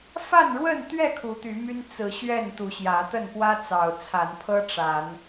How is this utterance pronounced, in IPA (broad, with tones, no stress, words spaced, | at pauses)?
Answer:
fa˥˨nɻwə˥˨nt̪ɥɛ˥˨ kʰu˨˦t̪y˨˦my˦n t͡sɹ̩˨˦ ɕɥɛ˥˨nt̪u˨˦ɕjä˨˦t̪ə˥˨n pwä˦t͡sɑ˨˩ʊ̯ t͡sʰa˨˦npʰɤ˦ ʈ͡ʂa˨˦n